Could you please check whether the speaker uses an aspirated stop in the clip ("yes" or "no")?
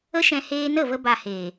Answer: no